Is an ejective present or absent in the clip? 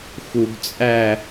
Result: present